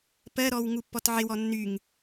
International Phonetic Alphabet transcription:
p ɜ ɾ ɔ w ŋ u pː ɔ t ʕ ɪ w ɔ nː y ŋ

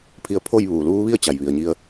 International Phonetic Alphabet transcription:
pʰ i˧ ə̯ pʰ o˥˨ j ʋ uː˩ l uː˧˥ ʋ i˥˨ ə̯ t͡ɕ a˩ j ʋ i˩ ə̯ ɲ i˧ ə̯

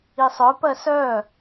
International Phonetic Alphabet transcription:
i sˤ œ p ɜ s œ

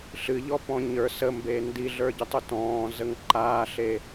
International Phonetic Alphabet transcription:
ɬ ɨ ʎ ɔ p ɔ̃ ɲ ə˞ s ə m b e n d i ɮ ə˞ ɟ ə tˤ u t ɔ̃ː z ə ŋ ǃ aː ɬ e

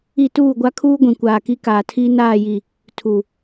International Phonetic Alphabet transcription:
i˦˨ t uː˦˨ ɡʷ a˦ kʰ uː˦ ɡʷ ĩ˨ kʷ aː˨ k i˦ k aː˨ tʰ iː˦ n aː˦˨ j i˨ | tʰ u˨

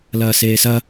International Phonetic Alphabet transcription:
l ɐː s eː s ɐ

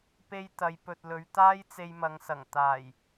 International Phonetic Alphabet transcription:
p e˧ j t̪ ɐ˨˧ j p ɵ˨ t̚ l ɵ˨˧ ɥ t̪ aː˥ j t͡s e˧ j m ɐ˨˧ ŋ s ɐ˨˩ ŋ t̪ aː˨˩ j

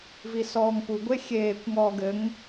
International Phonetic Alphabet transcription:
v i s ɔː ŋ p u ɡʷ e xʲ eː kʷ ŋ ɔː ɡ ɘ ŋ

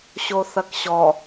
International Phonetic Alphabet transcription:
ɕ o θ ɐ k ɕ ɔ

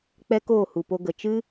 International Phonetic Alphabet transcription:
k͡p ɛ˦ k oː˦˨ h u˨ p o˧ ɡ ə˨ t͡ʃ ɨ˦

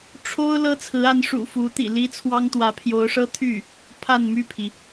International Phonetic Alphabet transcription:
ʈ͡ʂʰ o˥ ʊ̯ l ɤ˥ t͡sʰ ɹ̩˧˥ a˧˥ n ʂ ṵ˨˩ f u˧˥ t̪ ḭ˨˩ l i˥ t͡sʰ w ɑ˥ ŋ t̪ w ä˧˥ pʰ j o˧˥ ʊ̯ ʂ ɤ˥ t̪ʰ y˥˩ | pʰ a˥˧ n m y˥˩ pʰ i˩

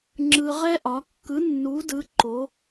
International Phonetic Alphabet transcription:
ŋ͡ǁ ɯ˧ ʁ ɛ˥ ʔ ɒ˧˥ kː ɯ˧˥ nː u˧˥ d ɯ˧˥ ǃ o˧˥

